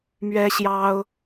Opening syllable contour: high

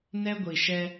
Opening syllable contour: high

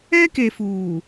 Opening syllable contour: high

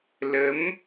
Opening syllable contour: rising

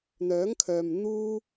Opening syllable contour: rising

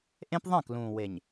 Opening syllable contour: high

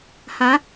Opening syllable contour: rising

